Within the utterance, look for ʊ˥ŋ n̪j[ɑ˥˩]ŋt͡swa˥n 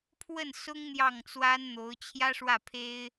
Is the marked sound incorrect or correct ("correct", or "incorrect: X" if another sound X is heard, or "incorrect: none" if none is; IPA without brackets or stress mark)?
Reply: correct